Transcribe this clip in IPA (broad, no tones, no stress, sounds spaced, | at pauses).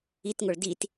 i t ŋ o ɭ d i t